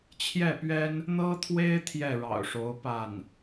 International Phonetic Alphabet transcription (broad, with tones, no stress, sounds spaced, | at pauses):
t͡ɕʰ j ɛ˥˩ p ɥ ɛ˥ n | n̪ ɤ˥ t̪ʰ w e˥ ɪ̯ t̪ʰ j ɛ˥˩ ɻ ɑ̰˨˩ ʊ̯ ʂ o˧˥ ʊ̯ p a˥˩ n